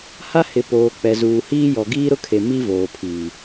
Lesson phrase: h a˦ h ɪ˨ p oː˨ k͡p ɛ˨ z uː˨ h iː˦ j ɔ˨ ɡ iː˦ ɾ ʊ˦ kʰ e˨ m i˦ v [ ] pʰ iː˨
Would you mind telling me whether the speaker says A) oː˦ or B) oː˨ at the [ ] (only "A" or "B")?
B